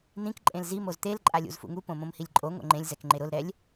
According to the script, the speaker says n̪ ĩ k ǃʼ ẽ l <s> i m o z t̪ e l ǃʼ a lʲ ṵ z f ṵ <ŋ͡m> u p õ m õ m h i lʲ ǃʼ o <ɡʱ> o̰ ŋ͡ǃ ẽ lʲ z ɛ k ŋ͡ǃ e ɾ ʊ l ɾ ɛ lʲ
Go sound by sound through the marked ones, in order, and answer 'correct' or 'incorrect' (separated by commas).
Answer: incorrect, incorrect, incorrect